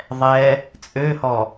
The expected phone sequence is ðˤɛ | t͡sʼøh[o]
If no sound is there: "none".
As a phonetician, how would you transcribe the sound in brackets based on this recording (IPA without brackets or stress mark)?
ɔ